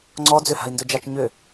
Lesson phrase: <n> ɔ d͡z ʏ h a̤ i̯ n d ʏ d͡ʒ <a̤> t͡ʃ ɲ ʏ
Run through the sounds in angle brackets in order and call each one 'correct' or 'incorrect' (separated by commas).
incorrect, incorrect